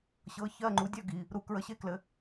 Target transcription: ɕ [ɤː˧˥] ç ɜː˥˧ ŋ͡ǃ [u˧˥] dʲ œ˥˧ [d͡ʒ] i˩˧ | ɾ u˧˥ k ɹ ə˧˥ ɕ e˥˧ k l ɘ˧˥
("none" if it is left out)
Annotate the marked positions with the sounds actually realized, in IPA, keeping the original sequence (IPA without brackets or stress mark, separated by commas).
ɤː˧˥, u˧˥, ɡ